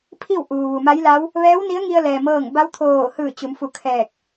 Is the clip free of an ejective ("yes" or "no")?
yes